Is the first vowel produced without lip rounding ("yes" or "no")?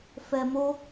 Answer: yes